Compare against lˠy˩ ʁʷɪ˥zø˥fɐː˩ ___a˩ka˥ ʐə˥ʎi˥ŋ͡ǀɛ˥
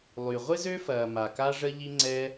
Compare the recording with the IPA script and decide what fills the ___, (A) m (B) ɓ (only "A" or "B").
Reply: A